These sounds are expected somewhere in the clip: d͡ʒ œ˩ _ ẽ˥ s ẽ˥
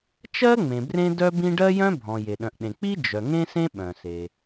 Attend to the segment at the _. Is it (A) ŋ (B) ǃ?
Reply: A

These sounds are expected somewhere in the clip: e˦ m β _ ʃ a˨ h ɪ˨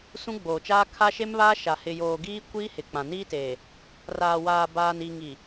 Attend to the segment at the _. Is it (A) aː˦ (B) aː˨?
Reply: A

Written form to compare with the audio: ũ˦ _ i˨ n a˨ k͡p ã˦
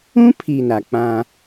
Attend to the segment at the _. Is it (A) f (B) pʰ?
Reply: B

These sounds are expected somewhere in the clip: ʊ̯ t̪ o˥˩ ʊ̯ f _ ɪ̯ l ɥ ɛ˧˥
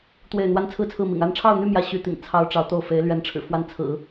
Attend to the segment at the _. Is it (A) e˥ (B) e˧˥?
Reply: B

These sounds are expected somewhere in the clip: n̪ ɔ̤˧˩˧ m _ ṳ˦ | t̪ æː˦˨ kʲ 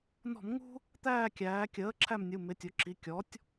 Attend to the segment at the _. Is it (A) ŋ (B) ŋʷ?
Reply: A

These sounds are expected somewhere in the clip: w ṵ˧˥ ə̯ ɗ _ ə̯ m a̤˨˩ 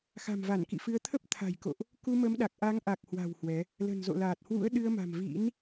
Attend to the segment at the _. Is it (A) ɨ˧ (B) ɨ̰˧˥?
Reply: A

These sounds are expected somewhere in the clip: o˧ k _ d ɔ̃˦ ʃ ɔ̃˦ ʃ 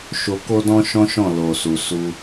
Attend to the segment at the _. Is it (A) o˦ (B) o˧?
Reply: A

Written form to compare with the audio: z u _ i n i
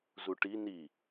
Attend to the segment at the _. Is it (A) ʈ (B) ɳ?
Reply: A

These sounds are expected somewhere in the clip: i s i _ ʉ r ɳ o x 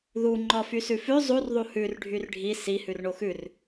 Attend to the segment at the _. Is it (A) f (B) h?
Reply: B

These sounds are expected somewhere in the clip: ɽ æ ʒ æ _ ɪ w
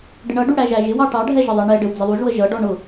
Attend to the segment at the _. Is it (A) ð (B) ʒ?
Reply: B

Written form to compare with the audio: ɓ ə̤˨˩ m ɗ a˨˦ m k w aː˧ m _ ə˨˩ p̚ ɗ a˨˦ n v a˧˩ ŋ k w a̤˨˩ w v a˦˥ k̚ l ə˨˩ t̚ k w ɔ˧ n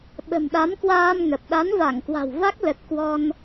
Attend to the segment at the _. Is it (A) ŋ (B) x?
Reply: A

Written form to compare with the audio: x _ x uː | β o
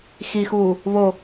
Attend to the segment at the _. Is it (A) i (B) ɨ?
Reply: A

